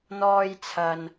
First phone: n̪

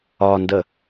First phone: ɒ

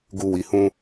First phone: ɡ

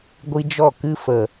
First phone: ɡʷ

